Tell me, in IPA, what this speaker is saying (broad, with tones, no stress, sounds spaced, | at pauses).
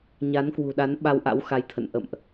ɲ a˨˦ n k w ṳ˨˩ ɗ a˨˦ n ɓ a˧ w ʔ a̰˧˥ w x a˨˦ j t̪ʰ ə̰˧˨ n ʔ ə̰˧˨ m ʔ